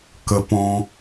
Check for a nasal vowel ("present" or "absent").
present